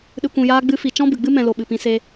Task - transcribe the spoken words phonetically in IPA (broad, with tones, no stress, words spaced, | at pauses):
ɗɨ˨kʷũ˨jaː˧ɡ͡bɨ˧ fi˨t͡ʃɔ̃˦ bɨ˨ɡ͡bɨ˦ mɛ̃˨lo˨ ɓɨ˨pĩ˧se˧